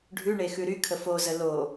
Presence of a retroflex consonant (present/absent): present